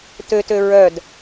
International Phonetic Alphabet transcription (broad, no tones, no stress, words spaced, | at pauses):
tøtø ɹœd